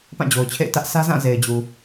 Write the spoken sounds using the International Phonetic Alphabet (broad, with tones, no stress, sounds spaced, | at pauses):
p ã˦˨ d͡ʑ o˨ ʊ̯ t͡ɕʰ ḛ˦˨ ɪ̯ t ä˦ ʔ s ä˦ z ã˦˨ z e˨ ɪ̯ d͡ʑ u˨